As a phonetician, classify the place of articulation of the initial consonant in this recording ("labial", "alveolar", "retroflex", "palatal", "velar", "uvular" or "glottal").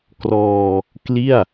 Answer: velar